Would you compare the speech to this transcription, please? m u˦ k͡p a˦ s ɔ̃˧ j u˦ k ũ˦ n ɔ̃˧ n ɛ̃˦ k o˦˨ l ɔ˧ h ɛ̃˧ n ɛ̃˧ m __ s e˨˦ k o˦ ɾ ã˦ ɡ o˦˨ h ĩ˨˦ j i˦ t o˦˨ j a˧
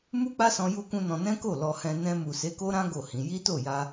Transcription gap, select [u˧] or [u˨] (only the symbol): u˨